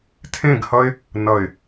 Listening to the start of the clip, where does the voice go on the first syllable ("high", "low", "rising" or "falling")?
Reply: falling